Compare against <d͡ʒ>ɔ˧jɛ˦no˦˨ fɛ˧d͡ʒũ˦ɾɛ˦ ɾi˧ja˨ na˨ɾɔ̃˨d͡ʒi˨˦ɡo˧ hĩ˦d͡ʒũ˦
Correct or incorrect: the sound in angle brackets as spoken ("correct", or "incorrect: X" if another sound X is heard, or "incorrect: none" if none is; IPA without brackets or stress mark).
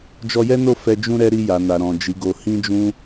correct